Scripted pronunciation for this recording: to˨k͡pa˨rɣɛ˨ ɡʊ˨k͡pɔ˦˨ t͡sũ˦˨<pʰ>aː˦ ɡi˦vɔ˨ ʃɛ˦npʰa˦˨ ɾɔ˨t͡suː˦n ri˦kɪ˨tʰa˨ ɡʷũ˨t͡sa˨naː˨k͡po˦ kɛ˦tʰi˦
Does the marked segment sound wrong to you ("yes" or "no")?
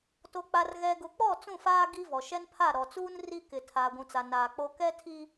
yes